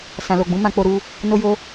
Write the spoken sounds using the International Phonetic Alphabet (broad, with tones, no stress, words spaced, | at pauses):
sã˨lo˨ ɡ͡bũ˨˦mã˧k͡po˧ ɾu˧ | no˧jo˧